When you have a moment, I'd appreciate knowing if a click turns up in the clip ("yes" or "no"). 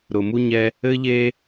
no